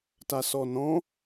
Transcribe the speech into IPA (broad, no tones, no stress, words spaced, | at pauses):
tasɔnɔ̃